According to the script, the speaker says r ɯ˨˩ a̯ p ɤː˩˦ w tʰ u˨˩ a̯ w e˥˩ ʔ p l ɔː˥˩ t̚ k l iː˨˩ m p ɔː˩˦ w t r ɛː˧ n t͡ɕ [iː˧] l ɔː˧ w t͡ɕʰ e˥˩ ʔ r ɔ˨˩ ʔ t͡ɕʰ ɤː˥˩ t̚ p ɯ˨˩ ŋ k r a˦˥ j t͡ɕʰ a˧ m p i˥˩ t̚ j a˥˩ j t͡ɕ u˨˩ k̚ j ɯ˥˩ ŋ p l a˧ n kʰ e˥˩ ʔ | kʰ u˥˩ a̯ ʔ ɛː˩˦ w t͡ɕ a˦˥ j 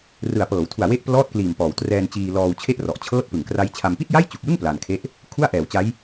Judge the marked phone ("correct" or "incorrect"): correct